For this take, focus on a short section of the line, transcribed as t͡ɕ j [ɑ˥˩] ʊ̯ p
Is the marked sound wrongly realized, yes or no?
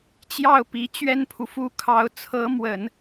no